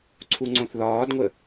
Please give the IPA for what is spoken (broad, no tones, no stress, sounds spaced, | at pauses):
ǀʰ u ŋ͡ǀ õ θ ð ɒː d ŋʷ ə